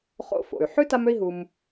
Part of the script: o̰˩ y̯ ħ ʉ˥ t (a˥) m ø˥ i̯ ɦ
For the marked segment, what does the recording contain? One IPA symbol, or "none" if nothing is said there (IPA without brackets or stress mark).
a˥